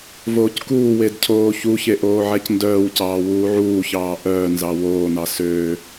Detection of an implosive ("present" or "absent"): absent